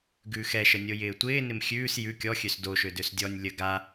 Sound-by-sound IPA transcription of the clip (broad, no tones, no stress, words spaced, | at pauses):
ɡʉːxɛʃə nʲojɪːtʷɪːnɪm xʲʉːs jʉ kʲɔxʲøs doʃø døsdʲɔnʲ lʲə ɡa